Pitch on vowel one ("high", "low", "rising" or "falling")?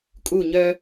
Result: falling